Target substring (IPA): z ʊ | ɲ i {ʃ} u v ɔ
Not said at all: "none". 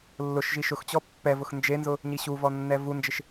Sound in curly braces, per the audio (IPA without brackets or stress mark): ɕ